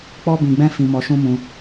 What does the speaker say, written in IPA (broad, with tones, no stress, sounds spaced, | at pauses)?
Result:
k͡p ɔ˦ b ĩ˧ ɡ͡b ɛ̃˦ f ĩ˧ m ɔ˧ ʃ ũ˦ m ũ˧